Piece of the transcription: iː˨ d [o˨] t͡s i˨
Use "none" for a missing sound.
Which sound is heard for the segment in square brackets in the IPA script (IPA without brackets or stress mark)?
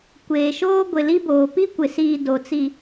o˨